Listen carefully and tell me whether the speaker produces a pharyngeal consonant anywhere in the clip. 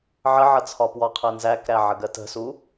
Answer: yes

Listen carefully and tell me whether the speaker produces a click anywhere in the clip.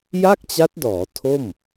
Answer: no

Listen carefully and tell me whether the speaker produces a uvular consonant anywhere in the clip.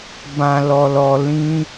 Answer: no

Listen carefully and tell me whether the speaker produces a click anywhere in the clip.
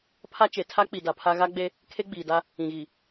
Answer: no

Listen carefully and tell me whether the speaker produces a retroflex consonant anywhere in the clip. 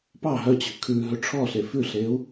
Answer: yes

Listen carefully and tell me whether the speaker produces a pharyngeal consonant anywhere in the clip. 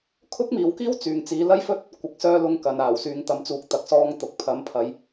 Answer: no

